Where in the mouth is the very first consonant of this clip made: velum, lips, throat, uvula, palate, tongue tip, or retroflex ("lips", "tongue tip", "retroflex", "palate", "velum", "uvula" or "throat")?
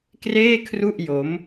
velum